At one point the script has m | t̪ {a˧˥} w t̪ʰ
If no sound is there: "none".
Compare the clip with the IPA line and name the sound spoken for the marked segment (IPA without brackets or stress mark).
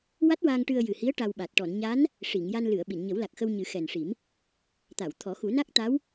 a˨˩˨